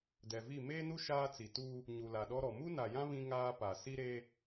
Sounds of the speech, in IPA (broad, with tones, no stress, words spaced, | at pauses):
dɛ˨vi˦˨ meː˦nu˦ ʃaː˦t͡si˨ tu˦ | ɲu˨la˨ɗɔ˦ɾɔ˨ mu˦na˨jã˦ βĩ˦ŋaː˦pa˨ si˦ɾe˦